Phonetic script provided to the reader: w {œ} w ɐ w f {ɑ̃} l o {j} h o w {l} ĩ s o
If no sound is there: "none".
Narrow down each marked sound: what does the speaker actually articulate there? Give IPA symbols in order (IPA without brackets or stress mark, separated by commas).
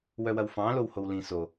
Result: œ, ɑ̃, w, l